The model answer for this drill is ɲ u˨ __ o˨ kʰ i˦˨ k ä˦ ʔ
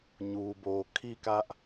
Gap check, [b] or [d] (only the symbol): b